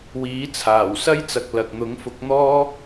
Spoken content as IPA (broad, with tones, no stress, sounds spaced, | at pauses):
w iː˨˥ t͡sʰ aː˨˩ w s ɐ˥ j t͡s ɐ˨ k̚ l ɐ˨ k̚ n̪ ʊ˨˥ ŋ f ʊ˨˥ k̚ n̪ ɔː˥